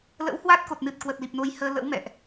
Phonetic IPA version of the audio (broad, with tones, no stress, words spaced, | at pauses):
lə̰˧˥whwa˦˥t̚ko˨˩t̚nɨ˨˩t̚ kwə˨˩t̚li˨˩p̚no˨˦j həː˧lə̰˧˥wmɛ̰˧˨ʔ